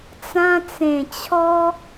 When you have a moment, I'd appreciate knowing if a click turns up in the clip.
no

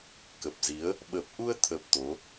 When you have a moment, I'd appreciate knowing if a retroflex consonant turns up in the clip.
no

